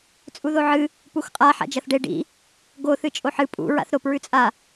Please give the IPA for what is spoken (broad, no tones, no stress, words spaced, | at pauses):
t͡sʼuðoʕɨ | puxqʼa ħa̰d͡ʒɐθɖe ɖḭ | ɡo θɨt͡ʃʼoħɨ pʼṵ ɹa̰θɾop ɹʉt͡sʼa